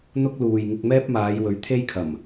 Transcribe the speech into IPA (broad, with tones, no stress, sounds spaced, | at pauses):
n̪ ʊ˥ k̚ l uː˨ j ŋ ɪ˧ k̚ m ɛː˥ p̚ m aː˨˧ j w ɵ˨˥ ɥ t̪ʰ e˥ j kʰ ɐ˨˩ m